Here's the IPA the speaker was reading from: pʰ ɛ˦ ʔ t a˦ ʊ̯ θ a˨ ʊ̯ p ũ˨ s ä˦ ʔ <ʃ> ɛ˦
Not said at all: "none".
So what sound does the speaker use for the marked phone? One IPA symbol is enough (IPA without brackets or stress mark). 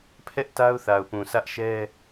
ʃ